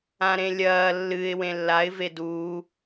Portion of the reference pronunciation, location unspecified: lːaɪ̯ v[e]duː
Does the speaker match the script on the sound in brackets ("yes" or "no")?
yes